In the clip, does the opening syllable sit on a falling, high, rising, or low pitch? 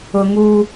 high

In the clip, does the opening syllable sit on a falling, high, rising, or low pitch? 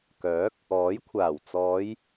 rising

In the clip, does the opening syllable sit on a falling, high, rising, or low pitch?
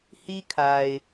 high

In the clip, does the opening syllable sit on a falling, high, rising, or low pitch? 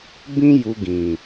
high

